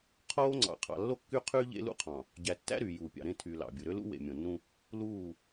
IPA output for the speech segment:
qʰ oː˦ ŋ͡ǀ ɑ̰˨ qʰ ɑ̰˨ lː o˦ kː y˦ qʰ yː˦ ʎ ḛ˦ l ṵ˦ qʰ ɑ̃˨ | ɟ æ˨ tː æ̰˦ ɾ yː˨ j uː˨ pʲ ɑ̰˨ ɾ ẽ˦˨ tʰ yː˨ l ɑ̰˨ bʲ ɯ˨ ɾ ø˦ l ṵ˦ w ḛ˨ mʲ õ˨ nː ũ˦ | l uː˦˨

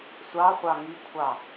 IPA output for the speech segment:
sʷ ɑ χʷ ɑ ŋ i kʷʰ ɑ

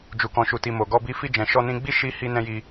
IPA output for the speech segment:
d͡ʒ u˨ k ɔ̃˨ ʃ u˨ t i˨ m o˨ ɡ ɔ˧ b i˧ f i˧ d͡ʒ ɛ̃˨ ʃ ɔ˧ n ĩ˧ ɡ͡b i˦ ʃ i˧ h i˧ n ɛ̃˧ j i˧

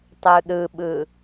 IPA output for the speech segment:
tˤ u ɗ ɯ ɓ ɯ

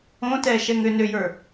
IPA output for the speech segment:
õ t ɛ ʃ ɛ ŋ ʏ n ʏ j ə˞

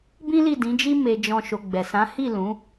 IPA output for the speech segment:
b ĩ˦ l i˦˨ d ĩ˨˦ d͡ʒ i˦ m e˧ d͡ʒ ɔ̃˧ ʃ o˧ ɡ͡b ɛ˨ s ã˨˦ h i˦˨ l ũ˨˦

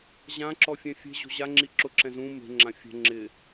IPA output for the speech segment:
ʑ ã ǁ ɔ fʲ ɛ̃ fʲ e̤ ʑ o̤ ʑ a ŋ͡ǁ i ǁ ʊ ǁ ɛ̃ z ũ m e̤ ŋ͡ǁ ã fʲ ɛ̤ ŋ͡ǁ ɪ

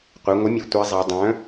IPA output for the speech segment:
qʷ œ˩˧ ŋʷ ə˩˥ mʲ o˩˧ tʷ ɛ˧˥ zˤ i˩˧ dˤ œ̃˩˥

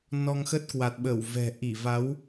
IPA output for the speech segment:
n ɔ˧ ŋ x ə˦˥ t̚ k w a˨˩ t̚ ɓ ə˧˩ w v ɛ̤˨˩ ʔ i˧˩ v a˨˦ w

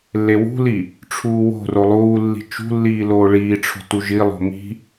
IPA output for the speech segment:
lː e w ṳ l i | ʈ͡ʂʰ uː w o̤ r o lˠ uː lː i̤ t͡ʃ ṳ lː iː l oː ɭ iː ʈ͡ʂʰ o̤ t u ʒ i lˠ o̤ m i̤

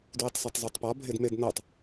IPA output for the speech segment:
d w i tˤ s ɒ tˤ zˤ u tˤ p ɒ bʱ e d m e d n ɤ tˤ

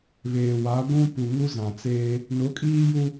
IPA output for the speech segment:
β eː˨ w a˨˦ ɡʷ ũ˦ p u˨ ŋ u˦ z ã˨ t͡s eː˦ | n ʊ˨˦ kʼ iː˦ j u˦

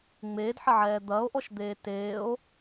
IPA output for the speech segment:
ŋ͡m eː d ħ ɐ ʕ ɛː d̪ ɐː o̯ ʔ ɔ ʃ d̪ eː t eː o̯

